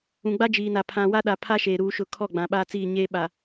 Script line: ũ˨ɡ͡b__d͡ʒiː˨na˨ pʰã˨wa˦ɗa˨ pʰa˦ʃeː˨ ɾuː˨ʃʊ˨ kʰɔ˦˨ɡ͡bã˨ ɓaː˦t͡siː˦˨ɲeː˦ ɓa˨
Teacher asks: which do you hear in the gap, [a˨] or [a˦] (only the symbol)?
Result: a˦